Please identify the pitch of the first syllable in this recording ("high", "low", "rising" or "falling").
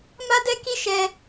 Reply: high